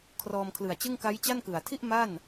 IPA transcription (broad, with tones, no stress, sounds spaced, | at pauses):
kʰ r ɔː˧ m kʰ l ɯ˨˩ a̯ t͡ɕ ɯ˥˩ ŋ k a˦˥ j t͡ɕ a˥˩ n k ɯ˨˩ a̯ tʰ i˥˩ ʔ m a˥˩ n